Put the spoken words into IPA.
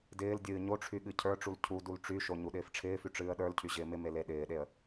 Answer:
d ɪː l dʲ ɨː ɲ o ʈ͡ʂʰ y ɠ ɨ cʰ ə˞ ʈ͡ʂ u l cʰ u d u l ʈ͡ʂ y ʃ o ɲ u ɗ ɪː f ʈ͡ʂʰ ɪː f y ʈ͡ʂ ɨː ə̯ ɗ ə˞ l cʰ y ʑ ɪː m ɪ m e l e ɗ ɪː ɗ e ə̯

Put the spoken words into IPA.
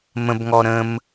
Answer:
m ə̃ b ŋ ɔ ɾ ə̃ m

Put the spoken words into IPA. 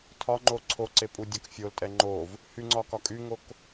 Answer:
tʰ ɒ ŋ͡ǃ o ǀʰ o ǀ e pʼ u dʲ ɒ k fʲ o l tʼ ɛ ŋ͡ǃ o v | h y ŋ͡ǀ ɒ k ɒ kʼ y ŋ o k

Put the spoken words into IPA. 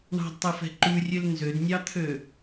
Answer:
ɳ ɑ̤ d tˤ e f ɛ̤ ǃ ʉ rʲ ø l n z ø d nʲ ɑ t̪ʰ ø

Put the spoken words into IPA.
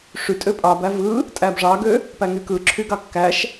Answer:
ʂ y tʼ ø pʼ ɑ b æ v ɯ | tʼ æ b ʐ ɑ ɡ ø | p æ ŋ y k ɯ ǁʰ y ɡ ɑ kː æ ʃ

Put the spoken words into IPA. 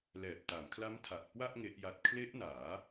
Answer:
l ɛː˨˩ p̚ t a˩˦ m kʰ l a˦˥ m tʰ a˨˩ ʔ k w a˥˩ ʔ ŋ e˦˥ ʔ j a˦˥ t̚ kʰ l e˦˥ ʔ n aː˩˦

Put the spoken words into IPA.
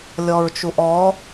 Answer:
lʲ ɔ ɹ t͡ʃ u ʔ ɔ

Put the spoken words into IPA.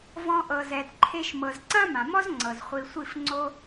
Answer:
v ɔ̃˧ ʔ ɤ˨ z ɛ˨ d ǃʰ e˧ ʃ m ɤ˨ z ǀ ã˦ m ã˨ m ɔ˦ z ŋ͡ǀ ɤ˨ z χʷ i˧ sʷ i˦˨ f ŋ͡ǀ o˦

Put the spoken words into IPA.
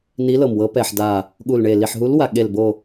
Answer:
n i˨˦ l ɤ˨˩ m w ɤ˨˦ p ɛ˨˩ ħ d a˨˩ | ɠ u˨˩ l ɳ e˨˩ l i˨˩ ħ ɦ u˨˦ l w a˨˩ ɠ e˨˩ l b o˨˩

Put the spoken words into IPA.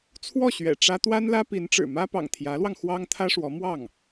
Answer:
t͡sʰ w ɔ˥˩ ɕ ɥ ɛ̰˨˩ ʈ͡ʂ ä˥ t̪ w a˥ n l ä˥ p i˧˥ n ʈ͡ʂ ɻ̩˨˩ m ä˥ p ɑ̰˨˩ ŋ t̪ʰ j ä˧˥ l w ɑ˧ ŋ x w ɑ˥ ŋ t̪ʰ ä˥ ʂ w ɔ˧˥ m w ɑ˥˩ ŋ

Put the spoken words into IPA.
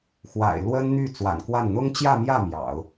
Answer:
x w a̰˨˩ ɪ̯ l w ə˥ n n̪ y˥˩ t͡s w a̰˨˩ n k w a˥˩ n n̪ ʊ˥ ŋ t͡ɕ j ä˥˧ m j ä˥˩ m j ɑ̰˨˩˦ ʊ̯

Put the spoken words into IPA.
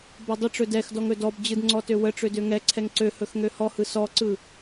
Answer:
b ɔ dˤ ə ʈ͡ʂ ɵ d ɛ x d ɔ ŋ ɵ d ɔ b d͡ʑ ɯ d ŋ͡ǀ ɔ t ø w ə ʈ͡ʂ ø d ø ŋ ɛ ǀʰ ɛ ŋ ǀ ø h ɵ x ŋ ø h ɔ h ɯ s ɔ ǀ ɯ

